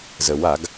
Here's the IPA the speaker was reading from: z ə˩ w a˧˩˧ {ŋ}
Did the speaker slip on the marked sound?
yes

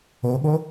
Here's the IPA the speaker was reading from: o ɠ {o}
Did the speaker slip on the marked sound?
no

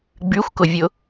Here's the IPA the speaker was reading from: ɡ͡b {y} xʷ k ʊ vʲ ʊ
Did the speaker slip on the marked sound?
no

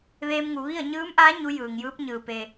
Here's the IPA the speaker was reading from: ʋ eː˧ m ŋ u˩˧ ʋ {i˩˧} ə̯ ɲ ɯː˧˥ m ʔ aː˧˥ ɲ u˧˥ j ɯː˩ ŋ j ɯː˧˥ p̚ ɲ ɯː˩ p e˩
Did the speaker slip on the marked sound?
yes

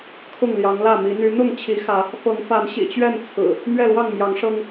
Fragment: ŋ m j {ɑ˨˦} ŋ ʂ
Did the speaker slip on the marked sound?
no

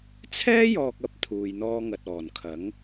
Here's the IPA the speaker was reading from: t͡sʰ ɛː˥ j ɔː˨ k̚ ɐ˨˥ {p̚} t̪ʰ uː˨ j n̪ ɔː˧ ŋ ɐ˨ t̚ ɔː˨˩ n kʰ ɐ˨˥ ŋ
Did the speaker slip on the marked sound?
no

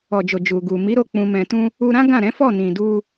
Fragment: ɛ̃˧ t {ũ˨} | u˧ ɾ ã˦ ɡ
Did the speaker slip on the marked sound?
yes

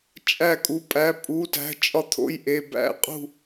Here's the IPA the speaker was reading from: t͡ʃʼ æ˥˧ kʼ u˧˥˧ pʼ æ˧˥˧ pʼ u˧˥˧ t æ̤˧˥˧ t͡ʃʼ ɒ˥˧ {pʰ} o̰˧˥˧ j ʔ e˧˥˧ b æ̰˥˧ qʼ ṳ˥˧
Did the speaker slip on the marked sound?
yes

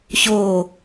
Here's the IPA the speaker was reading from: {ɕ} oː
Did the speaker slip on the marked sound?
no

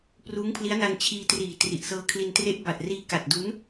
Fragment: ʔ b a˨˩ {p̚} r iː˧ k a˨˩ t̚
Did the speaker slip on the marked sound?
yes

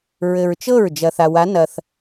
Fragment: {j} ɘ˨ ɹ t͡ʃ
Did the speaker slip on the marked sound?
yes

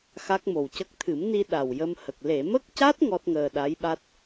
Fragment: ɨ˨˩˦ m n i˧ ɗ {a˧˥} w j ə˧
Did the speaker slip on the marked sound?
yes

